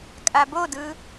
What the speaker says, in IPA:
kʼ a b o d ɯ

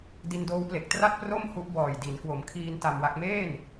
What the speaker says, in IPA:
d i˧ n d oː˦˥ w p l e˨˩ k̚ t r a˥˩ t̚ p r o˥˩ m h u˦˥ ʔ b ɔː˨˩ j d i˩˦ n k w o˩˦ m kʰ iː˧ n t a˧ m w a˦˥ k̚ m eː˥˩ n

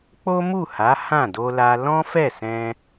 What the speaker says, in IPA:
k͡p o˦ m u˦˨ h a˨˦ h ã˦˨ d o˧ l a˧ l ɔ̃˦ f ɛ˦˨ s ɛ̃˧

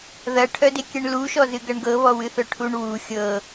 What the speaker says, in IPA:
ð ɐ ʈʰ œ d e kʲ ɛ ɳ l u ʃ ɔ z ɨ ɡ ɐ ɳ ɡ ɤ β ɔ w ɨ θ œ ʈʰ u ɳ w u xʲ ɤ

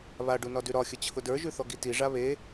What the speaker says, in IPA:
β a ɖ u n ɒ d ʉ ɾ ɒ xʲ ə t͡ɕʰ ʊ d ə˞ ʒ ʉ θ ɔ ɡ i t i ʐ a β e

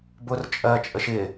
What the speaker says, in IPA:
b ʊ r t͡ʃʼ ɜ t͡ʃʼ ə ʃ ɪ

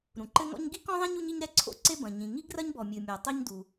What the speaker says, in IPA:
ɾ ũ˩ ǃ ɘ˥ ŋ ɔ̰˥ ɲ ɡ i˥ k ɔ̃˥ ðˤ ẽ˥ ɲ u˥ ɲ i˥ ɲ ɾ ɛ˥ ǀʰ o̰˥ ǀ e˥ b ɐ̃˩ ɲ ĩ˩ ŋ i˥ ɡ r ɐ˥ ɲ b ɔ˩ mʲ ɨ˩ mʲ a˩ tˤ ɛ˥ ɲ d u˩

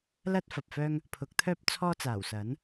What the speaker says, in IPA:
l ɐ˥ t̚ f ɐ˨ p̚ f œː˥ ŋ | pʰ ʊ˨˥ k̚ t̪ʰ œː˥ p̚ t͡sʰ ɔː˥ t͡s aː˨˩ w s ɐ˨˥ n

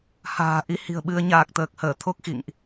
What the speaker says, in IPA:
h a̤ː˨˩ ʔ i˨˦ h i̤˨˩ ə̯ ɓ ɨ˧ ə̯ ɲ aː˨˩ k̚ t̪ əː˨˩ k̚ h əː˧˩ t̪ʰ o˦˥ k̚ x ḭ˧˨ ŋ ʔ

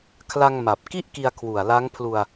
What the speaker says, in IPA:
kʰ l a˧ ŋ m a˨˩ p̚ k i˥˩ ʔ k i˧ a̯ kʰ w u˨˩ a̯ l a˦˥ ŋ pʰ l u˧ a̯

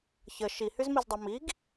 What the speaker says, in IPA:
ç ə ʃ i h y z m i z dˤ ɛ m i ɡ

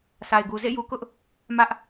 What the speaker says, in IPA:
sʰ a˨ ɪ̯ ɡ u˨ z ḛ˦˨ j u˨ k ʊ˦ ʔ | m ä˦ ʔ

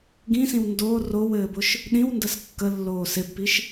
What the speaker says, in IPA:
ɡ ĩ s ĩ w n d o r o w ɘː b ʊ ʃ | ɗ ĩ w n d ə s kː ə lː oː s ɪ b p i ʃ

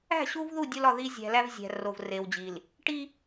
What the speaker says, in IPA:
æ̤˦˨ ɕ u˦ v ð u˦˨ dʲ o˦ l ɒ˨ ð i˦ zʲ æ̤˨ l æ˦ v zʲ æ̤˨ r o˨ v r e˨ w d͡ʑ i˨ l | ʈ i˦

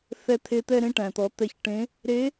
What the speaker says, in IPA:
θ ɛ˧ t̪ʰ e˧ t̪ ɛ˧ ɾ ẽ˧ ʈ æ̃˩ t̪ ɔ˩˧ t̪ ɛ˧ ç ʈ ẽ˧˥ | ɾ e˧˥

